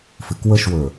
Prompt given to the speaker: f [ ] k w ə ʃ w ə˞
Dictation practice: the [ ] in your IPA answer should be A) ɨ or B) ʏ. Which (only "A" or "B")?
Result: A